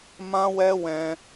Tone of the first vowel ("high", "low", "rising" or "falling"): high